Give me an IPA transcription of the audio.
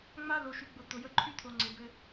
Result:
ŋ͡ma˦ lo˨ʃy˨ɡ͡bʊ˨ t̪ʊ˨jə˧ǃʰy˦t̪ʰo˨ ŋ͡ǀɪ˨bɘ˧

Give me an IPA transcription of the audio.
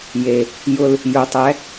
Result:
je˨ | jʊ˦l | jʊ˨˦tˤɛ˨˦

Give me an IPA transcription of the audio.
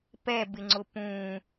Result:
pɛbɪŋ͡ǀʊ pũ

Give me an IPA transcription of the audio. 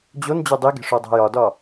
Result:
d͡ʑon d͡ʑodˤiɡe̤ʂ odˤæ̤jɒdɒ

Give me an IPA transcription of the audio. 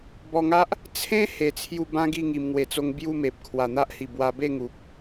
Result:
bɔ˧ŋa˦ʔ | t͡sʰẽ˦ he˧t͡sʰju˥˧ bã˦ɡi˥˧ ŋi˧mŋwe˧t͡so˦ŋ bju˥˧me˨p̚ kʰwa˨˩n̪a˦ʔhi˨˩ bwa˧ be˥˧ŋu˨p̚

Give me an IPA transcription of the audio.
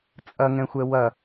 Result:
t͡sʼɐŋɛ̃xʷɛ wɐ

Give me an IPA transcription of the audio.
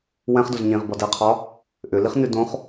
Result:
wɛ̃χdoz ɲĩʁbɒ dɛqʰɒ | ʔʏliχnʉ dõχ

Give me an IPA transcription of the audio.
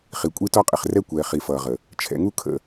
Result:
χi˨kʷʼi˦tɔ˦qʼɪ˨χ rɛ˦kʷɛː˨ χi˨fʌː˨ʁə˨ | t͡ʃʰɛ̰˨ŋu˦kʰə̰˨

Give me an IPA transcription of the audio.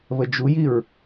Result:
βəd͡ʒujiɹ

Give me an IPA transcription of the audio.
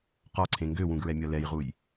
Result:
qɒǀʰẽ ŋɡøwũɡɹɛmʲɒ lɛjʁuj

